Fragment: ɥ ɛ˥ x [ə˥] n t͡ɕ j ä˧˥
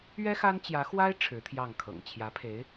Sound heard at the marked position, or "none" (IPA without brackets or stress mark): a˥